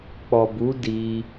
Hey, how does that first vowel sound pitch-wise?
low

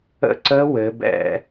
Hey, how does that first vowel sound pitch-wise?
falling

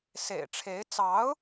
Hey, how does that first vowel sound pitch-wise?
low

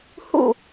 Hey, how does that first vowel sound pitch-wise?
falling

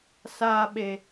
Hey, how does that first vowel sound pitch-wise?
high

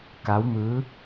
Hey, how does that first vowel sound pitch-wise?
rising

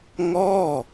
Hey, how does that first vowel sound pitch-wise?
falling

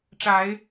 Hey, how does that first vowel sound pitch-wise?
rising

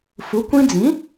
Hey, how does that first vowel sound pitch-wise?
rising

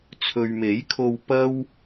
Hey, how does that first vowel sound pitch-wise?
low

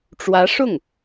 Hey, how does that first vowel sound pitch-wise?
rising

